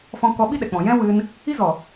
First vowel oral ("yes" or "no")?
no